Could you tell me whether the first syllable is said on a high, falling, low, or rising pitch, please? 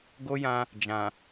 high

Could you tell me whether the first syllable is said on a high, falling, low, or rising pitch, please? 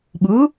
rising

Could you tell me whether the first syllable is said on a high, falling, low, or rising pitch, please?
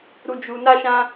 low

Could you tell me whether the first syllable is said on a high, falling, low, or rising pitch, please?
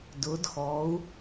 rising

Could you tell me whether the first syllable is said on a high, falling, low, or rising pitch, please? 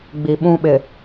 low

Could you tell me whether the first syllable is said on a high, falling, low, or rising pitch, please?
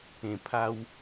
low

